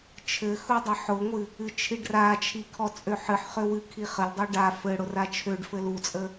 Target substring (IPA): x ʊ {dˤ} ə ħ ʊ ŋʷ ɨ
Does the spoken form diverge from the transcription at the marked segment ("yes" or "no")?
no